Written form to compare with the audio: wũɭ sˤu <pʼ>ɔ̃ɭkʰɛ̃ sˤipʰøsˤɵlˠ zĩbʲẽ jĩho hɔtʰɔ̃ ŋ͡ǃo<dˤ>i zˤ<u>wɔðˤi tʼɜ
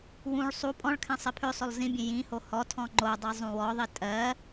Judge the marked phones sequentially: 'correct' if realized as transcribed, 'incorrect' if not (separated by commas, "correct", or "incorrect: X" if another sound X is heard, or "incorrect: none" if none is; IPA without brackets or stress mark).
correct, correct, incorrect: ũ